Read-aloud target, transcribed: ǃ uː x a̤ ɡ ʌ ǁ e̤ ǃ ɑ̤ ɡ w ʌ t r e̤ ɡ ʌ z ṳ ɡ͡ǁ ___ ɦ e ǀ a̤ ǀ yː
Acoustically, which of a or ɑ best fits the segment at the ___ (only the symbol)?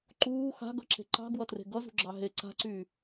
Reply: ɑ